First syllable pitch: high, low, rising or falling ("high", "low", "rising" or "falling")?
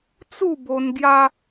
falling